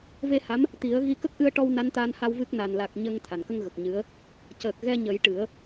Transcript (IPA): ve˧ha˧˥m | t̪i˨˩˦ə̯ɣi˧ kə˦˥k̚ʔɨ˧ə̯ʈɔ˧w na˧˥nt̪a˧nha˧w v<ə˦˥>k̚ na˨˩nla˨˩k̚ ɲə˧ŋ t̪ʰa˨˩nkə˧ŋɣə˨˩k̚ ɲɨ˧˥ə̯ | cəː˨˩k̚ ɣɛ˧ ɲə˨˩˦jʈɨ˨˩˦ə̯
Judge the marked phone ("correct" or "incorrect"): incorrect